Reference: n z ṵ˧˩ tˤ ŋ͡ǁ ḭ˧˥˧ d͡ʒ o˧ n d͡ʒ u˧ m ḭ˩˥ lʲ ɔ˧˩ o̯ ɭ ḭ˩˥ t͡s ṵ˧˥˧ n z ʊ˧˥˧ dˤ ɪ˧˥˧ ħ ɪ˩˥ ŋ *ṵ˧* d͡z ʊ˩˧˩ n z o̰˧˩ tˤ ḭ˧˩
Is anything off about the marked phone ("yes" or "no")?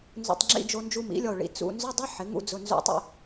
no